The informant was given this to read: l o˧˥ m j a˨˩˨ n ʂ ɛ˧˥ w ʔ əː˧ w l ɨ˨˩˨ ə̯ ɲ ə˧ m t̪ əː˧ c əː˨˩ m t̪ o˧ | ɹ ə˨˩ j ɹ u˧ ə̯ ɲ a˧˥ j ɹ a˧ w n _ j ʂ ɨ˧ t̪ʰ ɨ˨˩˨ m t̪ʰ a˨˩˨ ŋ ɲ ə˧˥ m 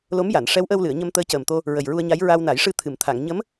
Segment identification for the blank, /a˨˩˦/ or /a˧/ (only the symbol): a˨˩˦